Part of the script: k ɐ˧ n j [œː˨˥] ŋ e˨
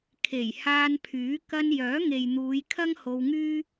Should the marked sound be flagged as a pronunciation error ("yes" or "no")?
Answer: no